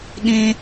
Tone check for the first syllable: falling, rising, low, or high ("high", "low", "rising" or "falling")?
low